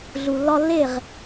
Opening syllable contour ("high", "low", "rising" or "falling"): low